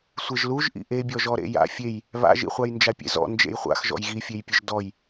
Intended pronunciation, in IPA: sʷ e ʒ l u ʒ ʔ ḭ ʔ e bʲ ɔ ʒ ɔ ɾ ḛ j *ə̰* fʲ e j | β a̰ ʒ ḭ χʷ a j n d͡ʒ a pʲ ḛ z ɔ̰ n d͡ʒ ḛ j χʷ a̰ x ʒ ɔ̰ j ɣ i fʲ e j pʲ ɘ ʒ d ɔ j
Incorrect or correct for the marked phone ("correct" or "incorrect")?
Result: incorrect